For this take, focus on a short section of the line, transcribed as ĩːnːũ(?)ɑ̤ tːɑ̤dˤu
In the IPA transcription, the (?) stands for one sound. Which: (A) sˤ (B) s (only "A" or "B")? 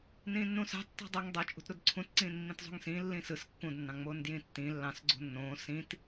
B